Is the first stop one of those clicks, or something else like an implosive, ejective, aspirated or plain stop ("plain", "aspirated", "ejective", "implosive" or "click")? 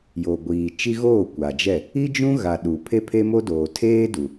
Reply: plain